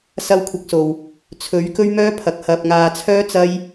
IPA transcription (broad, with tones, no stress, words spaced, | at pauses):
sɐ˥wkʷʰɐ˧k̚so˨w | t͡sʰɵ˨˥ɥ kɵ˥ɥmœː˥pʰɐ˨k̚ hɐ˨p̚ŋaː˨t͡sʰœː˥ t͡sɐ˥j